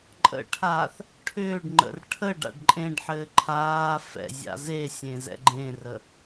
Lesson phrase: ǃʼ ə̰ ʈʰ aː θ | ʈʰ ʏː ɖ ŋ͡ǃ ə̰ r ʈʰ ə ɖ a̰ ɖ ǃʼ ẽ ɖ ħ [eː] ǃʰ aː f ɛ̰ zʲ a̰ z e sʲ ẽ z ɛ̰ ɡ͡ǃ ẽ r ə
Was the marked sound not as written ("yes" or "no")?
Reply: yes